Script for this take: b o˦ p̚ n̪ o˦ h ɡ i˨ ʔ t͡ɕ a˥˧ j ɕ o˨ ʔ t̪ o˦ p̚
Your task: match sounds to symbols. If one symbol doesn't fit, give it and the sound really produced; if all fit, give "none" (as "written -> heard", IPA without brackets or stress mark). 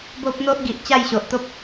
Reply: h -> ʔ